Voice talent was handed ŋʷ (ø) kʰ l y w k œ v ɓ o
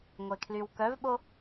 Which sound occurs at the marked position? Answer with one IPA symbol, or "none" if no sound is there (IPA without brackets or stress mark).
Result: e